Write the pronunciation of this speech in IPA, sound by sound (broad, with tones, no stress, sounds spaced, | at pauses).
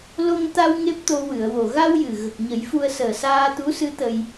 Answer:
l o˧ ŋ t̪ a˧ w ŋ e˦˥ p̚ t̪ o˧ w ɨ˨˩˨ ə̯ w o˨˩ ɣ a˧ w j ɨ˨˩ ɣ ə˨˩ k̚ ɲ ə˨˩˦ j f u˧ ə̯ s əː˨˩ s aː˧ t̪ u˧˥ s ɨ˧˥ t̪ ə˧ j